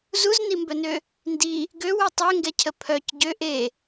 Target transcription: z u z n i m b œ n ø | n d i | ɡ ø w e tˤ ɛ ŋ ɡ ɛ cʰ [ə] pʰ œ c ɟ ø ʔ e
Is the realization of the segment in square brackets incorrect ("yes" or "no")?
no